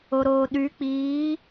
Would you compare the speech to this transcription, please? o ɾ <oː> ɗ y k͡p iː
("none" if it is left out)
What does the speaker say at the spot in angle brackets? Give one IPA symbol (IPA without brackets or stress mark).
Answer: oː